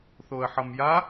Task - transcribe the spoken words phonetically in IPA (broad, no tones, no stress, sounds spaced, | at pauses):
θ o ə̯ ħ ʌ m j a